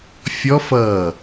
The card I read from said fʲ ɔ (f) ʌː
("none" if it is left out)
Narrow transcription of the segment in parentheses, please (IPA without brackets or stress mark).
f